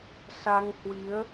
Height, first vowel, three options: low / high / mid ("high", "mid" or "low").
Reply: low